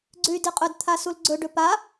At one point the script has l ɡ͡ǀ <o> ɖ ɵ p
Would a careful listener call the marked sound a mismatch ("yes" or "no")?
yes